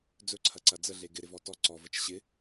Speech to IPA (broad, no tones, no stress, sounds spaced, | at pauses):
d͡z ɵ ǀʰ ɐ ǀ ɐ d͡z ə ɮ e ɡ ɪ ɾ ɪ v ɔ t ɔ ǀ ɔ v ə t͡ʃ ɕ ɪ